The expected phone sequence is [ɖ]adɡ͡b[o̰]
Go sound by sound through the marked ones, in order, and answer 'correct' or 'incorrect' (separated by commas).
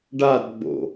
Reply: correct, correct